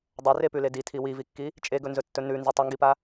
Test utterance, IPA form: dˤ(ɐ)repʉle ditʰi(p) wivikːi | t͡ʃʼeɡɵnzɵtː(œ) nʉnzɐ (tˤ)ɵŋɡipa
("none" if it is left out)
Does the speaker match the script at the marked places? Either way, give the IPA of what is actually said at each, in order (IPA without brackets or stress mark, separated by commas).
ɐ, none, ɵ, tˤ